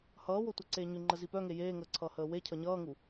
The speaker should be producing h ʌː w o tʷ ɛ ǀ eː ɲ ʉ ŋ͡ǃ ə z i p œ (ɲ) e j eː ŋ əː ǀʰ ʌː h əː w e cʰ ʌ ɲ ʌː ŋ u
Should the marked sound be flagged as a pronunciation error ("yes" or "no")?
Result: yes